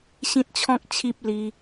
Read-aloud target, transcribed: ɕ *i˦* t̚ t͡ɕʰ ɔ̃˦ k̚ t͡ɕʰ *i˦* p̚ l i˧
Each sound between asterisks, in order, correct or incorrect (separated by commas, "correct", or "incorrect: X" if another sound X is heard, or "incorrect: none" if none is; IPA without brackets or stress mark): incorrect: ĩ˦, correct